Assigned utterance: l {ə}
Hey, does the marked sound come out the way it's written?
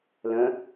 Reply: no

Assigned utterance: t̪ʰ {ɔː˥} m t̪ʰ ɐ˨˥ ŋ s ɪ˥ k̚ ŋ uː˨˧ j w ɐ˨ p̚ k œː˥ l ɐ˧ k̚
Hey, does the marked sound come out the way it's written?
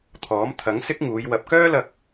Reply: no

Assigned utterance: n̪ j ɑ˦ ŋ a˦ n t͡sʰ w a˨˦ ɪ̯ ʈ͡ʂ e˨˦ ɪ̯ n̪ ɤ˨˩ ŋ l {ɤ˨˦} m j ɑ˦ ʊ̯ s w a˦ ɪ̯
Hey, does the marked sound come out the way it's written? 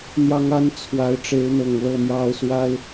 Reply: no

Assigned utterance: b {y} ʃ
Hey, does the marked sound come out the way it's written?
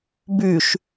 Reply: yes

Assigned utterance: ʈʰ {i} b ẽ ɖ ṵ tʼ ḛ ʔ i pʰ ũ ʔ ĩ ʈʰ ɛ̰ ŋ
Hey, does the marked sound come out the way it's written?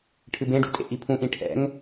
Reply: no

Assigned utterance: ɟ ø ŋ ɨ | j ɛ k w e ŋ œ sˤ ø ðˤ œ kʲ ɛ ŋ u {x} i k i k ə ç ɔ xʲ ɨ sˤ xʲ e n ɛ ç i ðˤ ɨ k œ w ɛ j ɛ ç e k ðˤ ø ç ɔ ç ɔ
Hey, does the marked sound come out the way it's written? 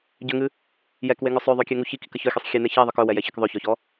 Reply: no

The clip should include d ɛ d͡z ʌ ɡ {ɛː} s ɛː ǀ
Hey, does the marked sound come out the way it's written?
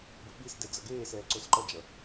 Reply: no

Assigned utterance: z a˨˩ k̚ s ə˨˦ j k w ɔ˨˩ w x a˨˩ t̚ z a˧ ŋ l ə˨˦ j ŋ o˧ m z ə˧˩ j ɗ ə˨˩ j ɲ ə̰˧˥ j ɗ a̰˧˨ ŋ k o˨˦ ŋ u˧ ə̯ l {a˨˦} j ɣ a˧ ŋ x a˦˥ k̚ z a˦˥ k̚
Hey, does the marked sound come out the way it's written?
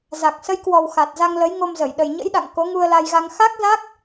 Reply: no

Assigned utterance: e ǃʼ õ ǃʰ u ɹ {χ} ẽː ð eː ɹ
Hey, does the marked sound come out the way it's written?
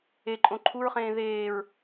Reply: yes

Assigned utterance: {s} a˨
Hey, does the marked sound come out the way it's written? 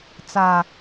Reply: no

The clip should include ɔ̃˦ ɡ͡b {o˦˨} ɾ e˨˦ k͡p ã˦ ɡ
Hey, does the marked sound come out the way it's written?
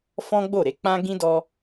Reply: yes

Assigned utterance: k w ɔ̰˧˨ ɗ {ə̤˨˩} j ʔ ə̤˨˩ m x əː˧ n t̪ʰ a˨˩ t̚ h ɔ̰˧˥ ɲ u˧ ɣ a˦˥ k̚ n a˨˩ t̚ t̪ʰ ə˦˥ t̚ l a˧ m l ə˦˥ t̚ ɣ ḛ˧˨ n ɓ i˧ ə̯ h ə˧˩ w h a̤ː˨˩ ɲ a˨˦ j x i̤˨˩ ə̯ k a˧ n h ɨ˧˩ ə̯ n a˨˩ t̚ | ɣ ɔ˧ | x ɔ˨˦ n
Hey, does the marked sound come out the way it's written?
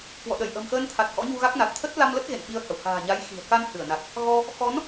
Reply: no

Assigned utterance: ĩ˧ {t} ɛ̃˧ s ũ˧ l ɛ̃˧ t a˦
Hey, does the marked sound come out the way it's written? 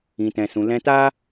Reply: yes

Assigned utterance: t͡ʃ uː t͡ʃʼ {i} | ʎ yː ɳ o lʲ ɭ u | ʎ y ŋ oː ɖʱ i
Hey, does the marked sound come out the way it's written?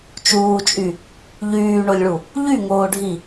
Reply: no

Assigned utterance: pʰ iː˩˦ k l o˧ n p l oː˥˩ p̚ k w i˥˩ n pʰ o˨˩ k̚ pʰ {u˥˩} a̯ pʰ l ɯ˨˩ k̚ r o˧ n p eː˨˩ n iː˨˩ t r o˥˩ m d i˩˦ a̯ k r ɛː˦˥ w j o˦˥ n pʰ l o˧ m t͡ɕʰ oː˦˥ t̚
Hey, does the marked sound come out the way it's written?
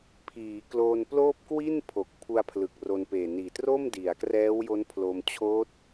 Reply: no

